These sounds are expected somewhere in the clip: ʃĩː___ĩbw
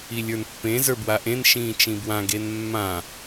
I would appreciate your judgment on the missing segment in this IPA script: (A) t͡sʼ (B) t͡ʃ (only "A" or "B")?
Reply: B